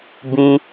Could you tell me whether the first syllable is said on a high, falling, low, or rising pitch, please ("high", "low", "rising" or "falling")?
high